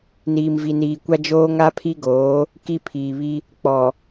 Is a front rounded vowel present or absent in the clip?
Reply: absent